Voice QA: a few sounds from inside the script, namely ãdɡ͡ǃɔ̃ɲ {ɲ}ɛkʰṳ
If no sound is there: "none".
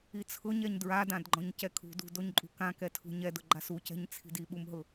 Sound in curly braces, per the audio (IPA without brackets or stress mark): c